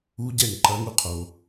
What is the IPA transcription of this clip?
u˦ɟɛ˦˨ŋǃɐ˦ŋu˦ qʰo˧

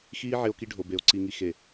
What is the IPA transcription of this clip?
xiː˦ ʕe˦o̯ki˦ ɖʱo˨be˨o̯ ǀi˨ŋi˨ xe˨

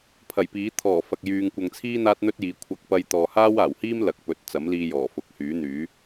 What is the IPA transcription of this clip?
pʰɐ˨˩jpiː˨˥ t̪ʰɔː˨˩ fɐ˨k̚ jyː˨ŋkʷɐ˨ŋt͡sʰiː˥ n̪aː˥t̚n̪ɵ˥t̚jiː˨˧ kʷʰɐ˧k̚pɐ˧j t̪ɔː˨haː˥waː˨˩whiː˥m lɐ˨k̚pɵ˨˥t̚ t͡sɐ˨˥mliː˧jɔː˨˩ fʊ˨˥k̚hyː˨˥n̪yː˨˥

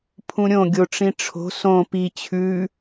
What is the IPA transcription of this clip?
pʰũɾʲõ ɡʲoʈ͡ʂĩʈ͡ʂʰo̤ sõ pi t͡ɕʰʉ

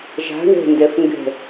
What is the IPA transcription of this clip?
ʒa̤ ɳɛ̤ndɛf ŋɡɛ̤

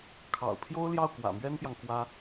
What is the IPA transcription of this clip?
kʰɑ̰˨˩ʊ̯pʰjo˥ʊ̯ ljɑ˥˩ʊ̯kwä̰˨˩mɥɛ˥npjɑ˨ŋ kwä˥

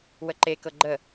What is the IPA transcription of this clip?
wəǃekɤ ɡ͡ǃə

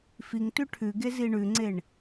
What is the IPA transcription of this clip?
fiŋtʉ ʈʰʉɡezi ɳʉŋ͡ǀeɳ

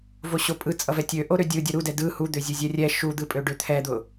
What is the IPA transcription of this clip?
voɕopʼɯ t͡sʼʌvɛtʲø ʔoɾødʲɯdʲʌ ɾudɛ dɯ hud̪øzʲuzʲɛ rʲɛ ʃud̪ɯpʼø ɖøt̪ʰɛd̪ʊ

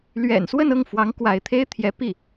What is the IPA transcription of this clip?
lɥɛ̰˨˩n swə˥˧nɤ˥˩ŋfwɑ˧˥ŋ kwa˧˥ɪ̯t̪ʰe˥ɪ̯ t̪ʰjɛ˧˥ pi˥˩

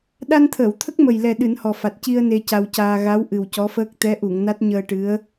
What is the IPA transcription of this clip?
ɗa˧nt̪ʰəː˨˩˨wt̪ʰə˦˥k̚ mə˨˩jlɛ˨˩ ɗɨ˨˩˦nhɔ˨˩fa˨˩t̚ ci˧ə̯ ne˧ca˧wcaː˧ ɣa˧˥w ʔɨ˨˩wcɔ˧˥fəː˦˥k̚ t̪ɛ˧˥ʔu˨˩˨ŋna˦˥t̚ ɲəː˧ʈɨ˧˥ə̯

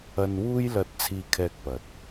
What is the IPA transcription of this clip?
ɐ˧nwuː˥jlɐ˧t̚ t͡sʰiː˥kʰɛː˥k̚pɐ˨t̚

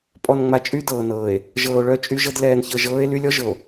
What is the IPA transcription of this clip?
pʼɔ˨nŋ͡ma˨ t͡ʃʼy˦ dɤː˨nɤː˨e̯ | ʒɤː˨o̯ɭœ˦˨ t͡ʃʼy˦ʒɤ˦d lɛː˦nçɤ˦ʒ ɤː˦e̯ly˦lʲɔ˦ʒɤ˨o̯

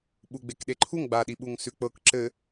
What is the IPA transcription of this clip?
ɓuɡ͡bekɗeǃʰuŋ ɡ͡baɗiɓuŋ sʉk͡pɤk ǁɘ

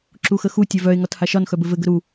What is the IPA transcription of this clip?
ǁuxəxu tʲœvœe̯ ŋɒthaʃɒn xœbɘvɘ ɡəɾu

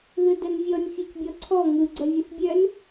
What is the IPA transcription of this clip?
ðɯdənvʲɔnʲ fʲɔcbʲɔǀʰɔ ŋɯ ɡ͡ǀœvʲɯθbʲœn

